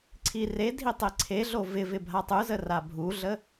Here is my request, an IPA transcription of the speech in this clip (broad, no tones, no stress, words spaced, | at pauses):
ǀʰiredʱi tˤeǀʰeɮo vɪvɪ bʱatˤuzə rabʱuɮə